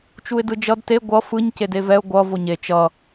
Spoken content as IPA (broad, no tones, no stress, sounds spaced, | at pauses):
t͡ʃ u ɪ̯ d ɯ d͡ʒ ʌ d t e ɡʷ ʌ f ɯ ɲ c e d e v ɛ ʊ̯ ɡʷ ʌ v o ɲ e t͡ʃ ʌ